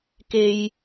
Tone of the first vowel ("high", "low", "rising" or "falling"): high